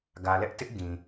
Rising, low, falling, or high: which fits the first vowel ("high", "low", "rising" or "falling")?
low